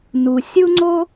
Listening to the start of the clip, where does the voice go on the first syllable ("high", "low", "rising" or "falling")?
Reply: low